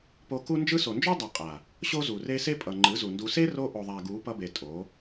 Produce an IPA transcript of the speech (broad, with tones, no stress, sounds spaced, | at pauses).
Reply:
p o˧ k u˦ n d͡ʒ ɯ˦ s o˨ n d͡ʒ o˦ dˤ a˨ qʼ a˨ | ɕ o˦ z u˨ r e˦ s e˦ pʼ ʌ˨ ŋ͡ǃ ɯ˨˦ z u˨ n d u˧ s e˦ r o˧ ʔ o˨ ðˤ a˨ ɡ u˨˦ p ʌ˦ b e˨ tʼ o˨˦